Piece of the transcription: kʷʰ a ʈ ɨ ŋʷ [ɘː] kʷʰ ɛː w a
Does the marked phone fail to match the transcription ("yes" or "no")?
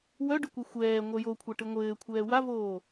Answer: no